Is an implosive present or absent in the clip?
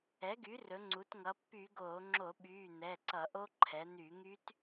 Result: present